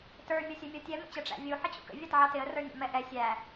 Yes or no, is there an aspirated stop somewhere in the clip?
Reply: no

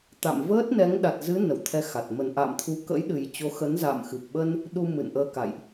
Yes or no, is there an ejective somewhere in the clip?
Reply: no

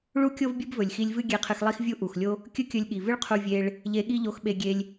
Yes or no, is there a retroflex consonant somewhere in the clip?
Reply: yes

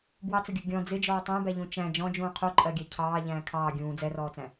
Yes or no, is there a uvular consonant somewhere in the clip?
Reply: yes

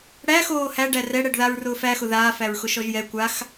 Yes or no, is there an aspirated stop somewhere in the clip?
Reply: no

